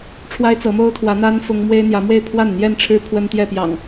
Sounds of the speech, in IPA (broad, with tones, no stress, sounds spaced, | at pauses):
ʈ͡ʂʰ w a˦ ɪ̯ t͡s ɤ˨˦ m o˦ ʊ̯ t̪ʰ w ä˨˦ n̪ a˦ n f ʊ˦ ŋ m w e˦ ɪ̯ n̪ j ä˨˦ m w e˥˨ ɪ̯ pʰ w a˥˨ n n̪ j ɛ˥˨ n ʈ͡ʂʰ ɻ̩˦ pʰ w ə˦ n t̪ j ɛ˥˨ p j ɑ̰˨˩ ŋ